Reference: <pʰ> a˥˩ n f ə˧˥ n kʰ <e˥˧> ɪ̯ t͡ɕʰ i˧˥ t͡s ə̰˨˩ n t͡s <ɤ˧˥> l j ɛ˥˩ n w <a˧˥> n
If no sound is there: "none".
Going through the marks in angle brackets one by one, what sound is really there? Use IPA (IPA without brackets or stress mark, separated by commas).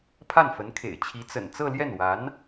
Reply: pʰ, ḛ˨˩, ɤ˥˧, a˧˥